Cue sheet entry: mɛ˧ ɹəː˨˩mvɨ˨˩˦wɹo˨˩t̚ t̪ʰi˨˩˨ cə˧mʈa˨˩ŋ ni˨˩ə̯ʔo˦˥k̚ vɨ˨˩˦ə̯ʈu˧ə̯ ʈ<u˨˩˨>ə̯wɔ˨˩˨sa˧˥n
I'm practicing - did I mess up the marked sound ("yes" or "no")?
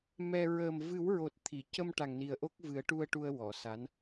yes